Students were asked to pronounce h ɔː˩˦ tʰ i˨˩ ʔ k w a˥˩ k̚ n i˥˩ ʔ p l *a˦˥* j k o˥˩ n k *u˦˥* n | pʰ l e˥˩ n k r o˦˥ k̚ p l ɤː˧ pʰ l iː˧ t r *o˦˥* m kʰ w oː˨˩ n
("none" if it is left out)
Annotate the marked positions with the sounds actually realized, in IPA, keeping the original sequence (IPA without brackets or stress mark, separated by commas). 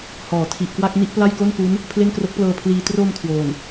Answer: a˥˩, u˦˥, o˧